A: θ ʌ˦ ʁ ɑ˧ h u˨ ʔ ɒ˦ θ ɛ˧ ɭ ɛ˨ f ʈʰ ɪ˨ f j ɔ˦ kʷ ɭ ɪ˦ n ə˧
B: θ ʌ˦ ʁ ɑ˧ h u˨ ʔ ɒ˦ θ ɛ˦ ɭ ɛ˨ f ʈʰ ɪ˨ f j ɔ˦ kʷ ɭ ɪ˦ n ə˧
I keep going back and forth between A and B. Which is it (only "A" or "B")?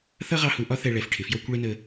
A